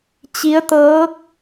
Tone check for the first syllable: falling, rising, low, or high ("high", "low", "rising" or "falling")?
rising